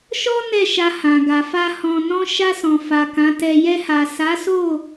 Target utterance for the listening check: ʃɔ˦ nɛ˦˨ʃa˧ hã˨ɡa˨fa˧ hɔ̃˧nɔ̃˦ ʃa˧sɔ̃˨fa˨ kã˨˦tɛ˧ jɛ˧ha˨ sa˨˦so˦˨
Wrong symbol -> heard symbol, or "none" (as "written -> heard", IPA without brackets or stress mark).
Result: none